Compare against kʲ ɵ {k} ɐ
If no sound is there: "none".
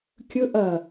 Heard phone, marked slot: ʔ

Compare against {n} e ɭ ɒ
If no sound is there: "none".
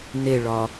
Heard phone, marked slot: n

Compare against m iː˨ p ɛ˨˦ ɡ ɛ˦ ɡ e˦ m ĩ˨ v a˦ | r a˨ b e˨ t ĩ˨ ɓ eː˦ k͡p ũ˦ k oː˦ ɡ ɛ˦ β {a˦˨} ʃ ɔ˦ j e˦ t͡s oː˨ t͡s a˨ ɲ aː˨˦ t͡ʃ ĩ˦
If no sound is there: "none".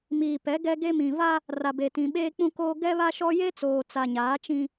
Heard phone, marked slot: a˦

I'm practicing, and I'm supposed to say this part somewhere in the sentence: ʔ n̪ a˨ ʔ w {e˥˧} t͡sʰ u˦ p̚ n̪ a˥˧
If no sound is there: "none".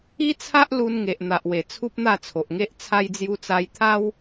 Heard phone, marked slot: e˨˩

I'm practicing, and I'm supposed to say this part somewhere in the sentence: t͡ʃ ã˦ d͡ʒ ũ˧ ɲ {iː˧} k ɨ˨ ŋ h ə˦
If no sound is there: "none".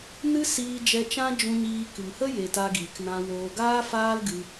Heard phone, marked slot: iː˧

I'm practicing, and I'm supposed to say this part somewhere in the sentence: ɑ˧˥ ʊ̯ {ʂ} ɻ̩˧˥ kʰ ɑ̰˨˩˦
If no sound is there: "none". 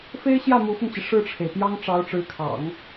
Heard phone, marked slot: ʈ͡ʂ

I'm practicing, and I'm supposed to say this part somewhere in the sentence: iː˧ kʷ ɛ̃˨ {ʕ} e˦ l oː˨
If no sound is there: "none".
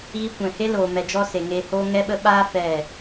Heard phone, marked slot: h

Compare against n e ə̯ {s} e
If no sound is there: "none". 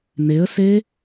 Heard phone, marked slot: s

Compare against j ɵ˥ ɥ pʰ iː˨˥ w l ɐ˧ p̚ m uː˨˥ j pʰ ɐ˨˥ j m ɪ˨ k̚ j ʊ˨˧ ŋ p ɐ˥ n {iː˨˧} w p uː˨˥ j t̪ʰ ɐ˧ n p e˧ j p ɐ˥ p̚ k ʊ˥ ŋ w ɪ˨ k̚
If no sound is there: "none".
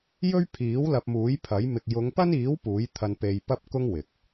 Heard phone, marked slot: iː˨˥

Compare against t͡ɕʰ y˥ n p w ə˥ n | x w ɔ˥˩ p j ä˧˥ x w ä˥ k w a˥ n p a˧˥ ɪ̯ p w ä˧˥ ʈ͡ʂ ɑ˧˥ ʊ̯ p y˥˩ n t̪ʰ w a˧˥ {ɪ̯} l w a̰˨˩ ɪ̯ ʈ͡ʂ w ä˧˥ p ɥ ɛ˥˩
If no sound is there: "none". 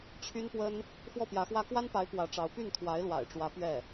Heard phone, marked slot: ɪ̯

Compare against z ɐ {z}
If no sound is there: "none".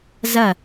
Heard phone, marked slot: none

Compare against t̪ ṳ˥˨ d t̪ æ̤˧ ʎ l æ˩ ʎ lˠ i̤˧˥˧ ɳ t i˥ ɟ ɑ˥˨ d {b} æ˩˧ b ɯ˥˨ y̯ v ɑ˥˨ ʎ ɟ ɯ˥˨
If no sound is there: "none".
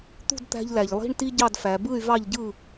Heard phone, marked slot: f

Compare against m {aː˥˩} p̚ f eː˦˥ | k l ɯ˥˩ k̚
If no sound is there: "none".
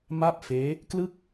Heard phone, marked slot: a˥˩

